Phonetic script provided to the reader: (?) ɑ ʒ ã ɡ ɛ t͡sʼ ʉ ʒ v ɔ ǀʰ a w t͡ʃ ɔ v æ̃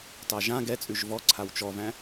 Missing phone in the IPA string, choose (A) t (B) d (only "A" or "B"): A